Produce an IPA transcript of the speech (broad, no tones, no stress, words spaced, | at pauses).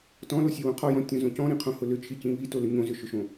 tɔ̃losʲewõ qʰɔjɔ̃tʲõzõ cɔ̃ɾĩqʰõhʊ lʏt͡ʃʰicĩ βitolʏ ɲõzʏʃʏʃõ